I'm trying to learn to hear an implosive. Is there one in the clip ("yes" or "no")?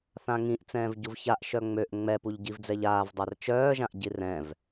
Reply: no